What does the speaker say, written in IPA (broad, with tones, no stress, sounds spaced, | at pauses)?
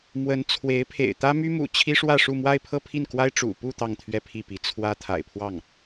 m w ə˧˥ n t͡sʰ w e˧˥ ɪ̯ pʰ ḛ˨˩ ɪ̯ t̪ ä˥ m y˥ m ṵ˨˩ t͡ɕʰ i˥ ʂ w ä˥˧ ʂ u˥˧ m w a˥˧ ɪ̯ pʰ ɤ˥˧ pʰ i˥˩ n k w a˥ ɪ̯ ʈ͡ʂ ṵ˨˩ p u˥˧ t̪ ɑ˥˧ ŋ t̪ʰ ɥ ɛ˥˧ pʰ i˥˩ p i˧˥ t͡sʰ w ä˥ t̪ʰ a̰˨˩ ɪ̯ pʰ w ɑ˥˩ ŋ